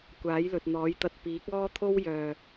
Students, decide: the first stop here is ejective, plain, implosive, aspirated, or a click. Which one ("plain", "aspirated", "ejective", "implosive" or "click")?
plain